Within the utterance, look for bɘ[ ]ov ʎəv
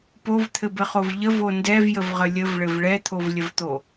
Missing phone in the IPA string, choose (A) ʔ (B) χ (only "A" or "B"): B